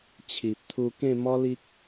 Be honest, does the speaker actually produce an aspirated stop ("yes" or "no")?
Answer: yes